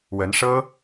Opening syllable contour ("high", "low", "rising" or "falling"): rising